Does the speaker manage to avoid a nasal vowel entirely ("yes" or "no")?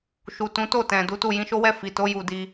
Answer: no